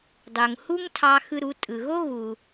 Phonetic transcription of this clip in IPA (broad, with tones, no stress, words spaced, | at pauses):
dˤo˩ŋhu˥ŋtʰɑ˧ xɯ˧ɾu˩˧ tʼɯ˩ɣo˥ ɣu˩